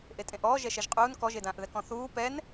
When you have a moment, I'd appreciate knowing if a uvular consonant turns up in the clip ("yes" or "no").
yes